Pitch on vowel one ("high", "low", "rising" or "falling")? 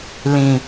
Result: low